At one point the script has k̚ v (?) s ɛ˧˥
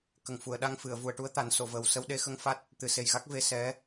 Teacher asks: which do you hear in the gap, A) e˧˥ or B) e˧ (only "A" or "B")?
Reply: A